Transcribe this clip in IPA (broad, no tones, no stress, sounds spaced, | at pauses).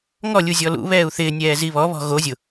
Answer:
ŋ ɔ lʲ u zʲ ɔ l ṵ β ɛː u̯ θ ɪː nʲ ɛː z i β ɔ β ɔ̤ ɣ o zʲ ʊ